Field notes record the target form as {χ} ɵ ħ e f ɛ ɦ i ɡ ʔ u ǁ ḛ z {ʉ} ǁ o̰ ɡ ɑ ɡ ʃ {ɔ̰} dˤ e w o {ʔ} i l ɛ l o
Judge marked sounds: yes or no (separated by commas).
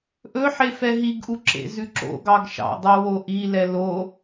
no, yes, no, yes